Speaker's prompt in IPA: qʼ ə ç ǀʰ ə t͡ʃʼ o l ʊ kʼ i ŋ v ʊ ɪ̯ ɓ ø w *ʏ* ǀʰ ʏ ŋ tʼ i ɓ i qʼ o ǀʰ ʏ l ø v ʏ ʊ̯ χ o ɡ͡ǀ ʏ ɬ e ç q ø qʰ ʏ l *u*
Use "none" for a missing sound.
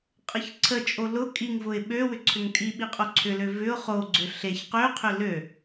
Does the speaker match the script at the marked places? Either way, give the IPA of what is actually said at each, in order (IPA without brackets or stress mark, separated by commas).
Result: ʏ, ø